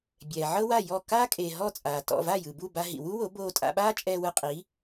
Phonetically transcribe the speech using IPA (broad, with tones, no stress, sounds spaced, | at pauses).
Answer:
bʲ ɛː˩ ʕ ɤ˥ w a˥˩ j ɔ˥˩ k aː˥ kʼ eː˩ ɦ ɔ˥˩ t͡sʼ aː˩ t ɔ̰˥˩ v a˥˩ j ɯ˩ b u˥˩ b a˧ ɦ ḭ˩ w u˥ w o˩˥ b oː˧ tʼ a̰˧ ɓ aː˥ t͡ʃʼ ɛː˧ w ɯ˧ qʼ iː˩˥